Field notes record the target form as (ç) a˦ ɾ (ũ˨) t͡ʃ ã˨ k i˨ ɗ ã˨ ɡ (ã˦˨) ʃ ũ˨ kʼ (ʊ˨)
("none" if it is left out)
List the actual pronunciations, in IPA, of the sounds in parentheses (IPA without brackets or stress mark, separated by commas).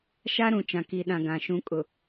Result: ʃ, ũ˨, ã˨, ʊ˨